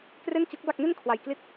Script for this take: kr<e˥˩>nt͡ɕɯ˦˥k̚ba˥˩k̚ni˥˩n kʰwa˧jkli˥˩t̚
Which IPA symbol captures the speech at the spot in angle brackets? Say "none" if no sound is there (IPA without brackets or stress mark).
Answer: e˥˩